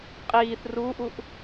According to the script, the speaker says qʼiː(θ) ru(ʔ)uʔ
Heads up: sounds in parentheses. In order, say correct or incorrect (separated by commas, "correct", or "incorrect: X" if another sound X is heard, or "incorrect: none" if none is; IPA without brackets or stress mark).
correct, correct